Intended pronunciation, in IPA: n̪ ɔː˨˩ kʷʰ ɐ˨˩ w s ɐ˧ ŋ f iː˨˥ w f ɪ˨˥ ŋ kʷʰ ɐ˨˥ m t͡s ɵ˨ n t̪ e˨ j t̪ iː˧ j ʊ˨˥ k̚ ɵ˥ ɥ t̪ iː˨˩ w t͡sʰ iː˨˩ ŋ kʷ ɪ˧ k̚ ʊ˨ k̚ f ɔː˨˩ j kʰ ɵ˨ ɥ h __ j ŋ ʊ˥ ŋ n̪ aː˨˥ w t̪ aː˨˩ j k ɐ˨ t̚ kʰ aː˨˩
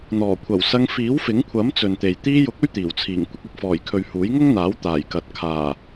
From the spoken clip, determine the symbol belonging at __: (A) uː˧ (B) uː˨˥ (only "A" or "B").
B